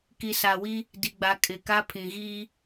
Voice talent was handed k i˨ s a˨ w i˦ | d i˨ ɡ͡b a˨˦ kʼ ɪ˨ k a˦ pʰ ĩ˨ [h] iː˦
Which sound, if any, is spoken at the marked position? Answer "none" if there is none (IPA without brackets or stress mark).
ɣ